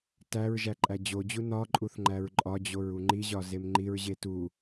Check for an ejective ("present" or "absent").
present